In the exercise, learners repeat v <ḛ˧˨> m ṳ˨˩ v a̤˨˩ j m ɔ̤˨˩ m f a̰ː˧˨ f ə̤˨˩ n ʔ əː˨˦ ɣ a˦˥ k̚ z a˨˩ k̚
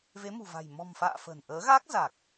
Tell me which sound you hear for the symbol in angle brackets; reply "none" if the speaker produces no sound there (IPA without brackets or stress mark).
e˨˦